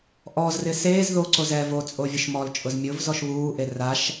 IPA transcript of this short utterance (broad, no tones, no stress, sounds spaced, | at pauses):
ʔ ɔ z r ɪ s eː z ð o ǀ o z ɛ v o t͡sʼ o vʲ ʊ ʃ m ɔ l t͡ʃʼ ʊ z mʲ ʊ v z ɔ ʃ β uː ʔ e r a ʃ